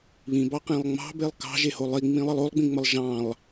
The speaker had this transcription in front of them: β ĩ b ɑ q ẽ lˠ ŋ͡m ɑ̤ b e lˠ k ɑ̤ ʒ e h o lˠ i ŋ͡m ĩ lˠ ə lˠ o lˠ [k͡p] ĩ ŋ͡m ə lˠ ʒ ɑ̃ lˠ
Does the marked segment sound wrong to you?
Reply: yes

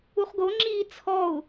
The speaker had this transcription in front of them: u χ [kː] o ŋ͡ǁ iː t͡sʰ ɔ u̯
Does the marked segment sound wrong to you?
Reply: yes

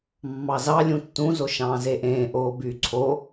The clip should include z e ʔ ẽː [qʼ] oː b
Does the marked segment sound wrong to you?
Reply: yes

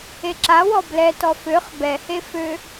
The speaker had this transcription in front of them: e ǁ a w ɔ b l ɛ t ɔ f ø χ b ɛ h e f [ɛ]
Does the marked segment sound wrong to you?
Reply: yes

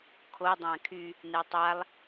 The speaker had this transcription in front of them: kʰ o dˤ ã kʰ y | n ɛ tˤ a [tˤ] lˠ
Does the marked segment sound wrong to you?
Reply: yes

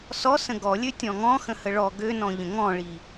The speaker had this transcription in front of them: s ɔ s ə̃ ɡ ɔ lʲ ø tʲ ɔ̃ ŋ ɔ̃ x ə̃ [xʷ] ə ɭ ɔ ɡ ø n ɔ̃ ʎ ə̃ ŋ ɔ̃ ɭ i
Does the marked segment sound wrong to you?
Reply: yes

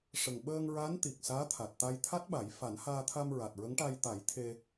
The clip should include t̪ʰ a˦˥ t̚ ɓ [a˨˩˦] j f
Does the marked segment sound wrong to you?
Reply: no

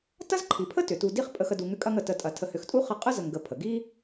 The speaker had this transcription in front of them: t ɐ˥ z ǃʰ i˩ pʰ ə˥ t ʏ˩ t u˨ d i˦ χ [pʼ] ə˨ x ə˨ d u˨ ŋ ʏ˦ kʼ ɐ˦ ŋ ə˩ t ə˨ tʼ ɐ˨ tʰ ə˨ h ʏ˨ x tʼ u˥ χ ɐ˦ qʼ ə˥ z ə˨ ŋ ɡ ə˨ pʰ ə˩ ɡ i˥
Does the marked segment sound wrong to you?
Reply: no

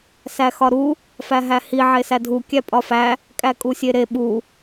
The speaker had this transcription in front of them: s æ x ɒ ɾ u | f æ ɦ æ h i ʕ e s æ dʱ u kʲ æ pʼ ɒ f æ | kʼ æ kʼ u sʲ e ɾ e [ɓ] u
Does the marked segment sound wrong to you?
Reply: no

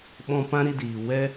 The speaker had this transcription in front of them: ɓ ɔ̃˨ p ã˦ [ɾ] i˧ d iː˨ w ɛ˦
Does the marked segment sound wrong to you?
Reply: no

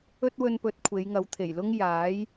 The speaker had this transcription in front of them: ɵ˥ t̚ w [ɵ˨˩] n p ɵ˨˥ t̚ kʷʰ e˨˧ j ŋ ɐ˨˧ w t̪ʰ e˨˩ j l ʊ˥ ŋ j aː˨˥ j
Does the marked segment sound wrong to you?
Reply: yes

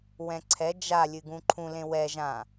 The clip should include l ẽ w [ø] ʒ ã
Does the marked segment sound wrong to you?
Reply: yes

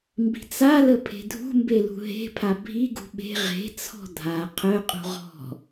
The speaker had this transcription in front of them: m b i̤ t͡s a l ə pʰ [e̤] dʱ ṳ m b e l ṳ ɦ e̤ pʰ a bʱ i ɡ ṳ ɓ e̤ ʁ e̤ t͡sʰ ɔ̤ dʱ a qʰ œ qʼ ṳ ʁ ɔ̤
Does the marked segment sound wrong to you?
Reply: no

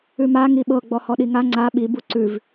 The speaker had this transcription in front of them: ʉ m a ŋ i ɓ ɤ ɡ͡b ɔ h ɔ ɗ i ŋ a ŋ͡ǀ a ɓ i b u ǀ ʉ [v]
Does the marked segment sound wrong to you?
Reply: no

